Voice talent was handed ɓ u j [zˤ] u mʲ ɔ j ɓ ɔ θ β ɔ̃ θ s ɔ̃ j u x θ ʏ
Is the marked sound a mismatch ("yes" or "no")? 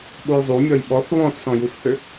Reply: no